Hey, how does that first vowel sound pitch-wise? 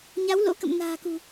rising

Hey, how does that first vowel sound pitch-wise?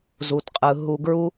low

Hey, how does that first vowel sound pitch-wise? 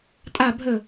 falling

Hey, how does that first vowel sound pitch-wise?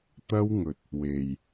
high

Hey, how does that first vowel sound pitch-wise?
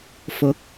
rising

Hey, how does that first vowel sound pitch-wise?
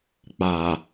low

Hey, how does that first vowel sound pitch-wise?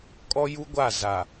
high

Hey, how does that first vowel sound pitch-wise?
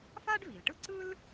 high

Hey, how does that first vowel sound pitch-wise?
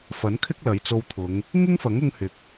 rising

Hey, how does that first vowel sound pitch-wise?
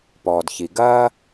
low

